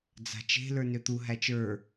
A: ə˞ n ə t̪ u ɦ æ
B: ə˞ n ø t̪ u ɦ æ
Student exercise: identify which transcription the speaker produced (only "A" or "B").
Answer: B